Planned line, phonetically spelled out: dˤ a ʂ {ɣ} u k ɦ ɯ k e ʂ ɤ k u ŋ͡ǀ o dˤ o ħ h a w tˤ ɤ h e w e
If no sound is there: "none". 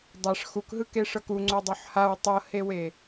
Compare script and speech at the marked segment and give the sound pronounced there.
x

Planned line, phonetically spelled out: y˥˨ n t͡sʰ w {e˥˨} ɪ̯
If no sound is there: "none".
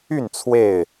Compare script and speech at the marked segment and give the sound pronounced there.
e˥˨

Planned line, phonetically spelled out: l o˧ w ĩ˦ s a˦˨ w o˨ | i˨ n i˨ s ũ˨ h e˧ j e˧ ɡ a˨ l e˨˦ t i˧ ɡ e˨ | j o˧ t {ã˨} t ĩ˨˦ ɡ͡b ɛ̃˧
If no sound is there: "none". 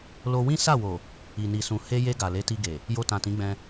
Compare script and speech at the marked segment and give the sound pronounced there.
ã˨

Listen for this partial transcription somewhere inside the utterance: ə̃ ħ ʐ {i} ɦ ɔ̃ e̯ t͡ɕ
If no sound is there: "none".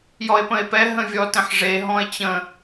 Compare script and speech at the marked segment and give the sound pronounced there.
e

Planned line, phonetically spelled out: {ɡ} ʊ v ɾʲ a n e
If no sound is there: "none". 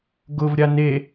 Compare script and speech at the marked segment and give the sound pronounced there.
ɡ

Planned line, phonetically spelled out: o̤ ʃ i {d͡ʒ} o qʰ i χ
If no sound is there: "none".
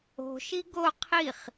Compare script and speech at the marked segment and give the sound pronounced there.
ɡ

